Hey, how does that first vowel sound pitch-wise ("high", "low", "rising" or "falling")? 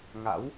rising